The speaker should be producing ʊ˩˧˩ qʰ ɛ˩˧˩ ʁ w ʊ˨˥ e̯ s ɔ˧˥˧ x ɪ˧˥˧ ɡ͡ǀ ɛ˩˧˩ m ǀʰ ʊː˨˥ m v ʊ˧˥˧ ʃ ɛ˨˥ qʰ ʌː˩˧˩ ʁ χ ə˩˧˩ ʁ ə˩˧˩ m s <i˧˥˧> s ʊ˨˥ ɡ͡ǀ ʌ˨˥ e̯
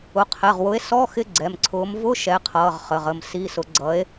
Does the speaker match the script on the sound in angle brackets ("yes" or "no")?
yes